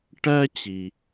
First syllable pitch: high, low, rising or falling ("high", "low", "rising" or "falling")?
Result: high